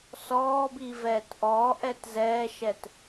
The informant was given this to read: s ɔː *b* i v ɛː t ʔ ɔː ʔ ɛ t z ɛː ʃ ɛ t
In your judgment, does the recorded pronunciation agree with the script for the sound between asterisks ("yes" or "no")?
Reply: yes